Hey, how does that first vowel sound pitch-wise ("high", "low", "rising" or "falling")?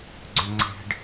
high